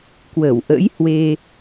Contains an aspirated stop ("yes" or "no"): no